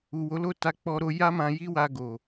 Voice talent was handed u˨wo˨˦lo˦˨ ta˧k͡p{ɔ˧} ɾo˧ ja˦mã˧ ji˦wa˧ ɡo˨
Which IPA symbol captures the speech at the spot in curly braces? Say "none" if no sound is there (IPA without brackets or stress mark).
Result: ɔ˧